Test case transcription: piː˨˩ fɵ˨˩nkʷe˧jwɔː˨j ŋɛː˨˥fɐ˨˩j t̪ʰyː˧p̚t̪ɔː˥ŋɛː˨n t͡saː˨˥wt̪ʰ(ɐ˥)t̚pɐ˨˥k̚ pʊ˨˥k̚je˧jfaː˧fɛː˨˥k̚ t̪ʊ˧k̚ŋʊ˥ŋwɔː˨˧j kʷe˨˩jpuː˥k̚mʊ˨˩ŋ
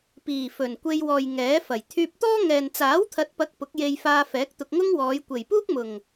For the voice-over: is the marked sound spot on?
no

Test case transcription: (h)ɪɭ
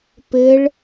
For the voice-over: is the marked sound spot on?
no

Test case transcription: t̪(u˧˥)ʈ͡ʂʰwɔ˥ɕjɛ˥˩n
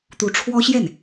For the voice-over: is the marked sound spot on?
yes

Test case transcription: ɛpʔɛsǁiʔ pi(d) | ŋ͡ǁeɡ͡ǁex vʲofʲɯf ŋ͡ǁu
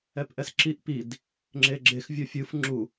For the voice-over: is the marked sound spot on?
yes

